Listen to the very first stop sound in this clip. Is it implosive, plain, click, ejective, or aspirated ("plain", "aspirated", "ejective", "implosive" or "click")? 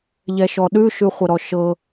implosive